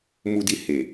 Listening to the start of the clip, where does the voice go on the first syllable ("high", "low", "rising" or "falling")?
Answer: low